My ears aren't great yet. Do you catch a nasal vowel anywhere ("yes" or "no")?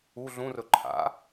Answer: yes